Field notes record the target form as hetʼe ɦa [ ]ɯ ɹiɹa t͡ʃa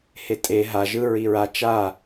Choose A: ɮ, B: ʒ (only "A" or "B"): B